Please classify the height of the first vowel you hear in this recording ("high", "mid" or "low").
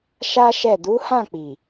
low